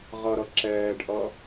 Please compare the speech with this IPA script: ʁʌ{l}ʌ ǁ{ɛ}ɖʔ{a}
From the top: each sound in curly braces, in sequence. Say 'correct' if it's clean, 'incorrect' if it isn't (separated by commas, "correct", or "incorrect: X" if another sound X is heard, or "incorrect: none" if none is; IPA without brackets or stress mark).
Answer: incorrect: ɾ, incorrect: ɛː, incorrect: ʌ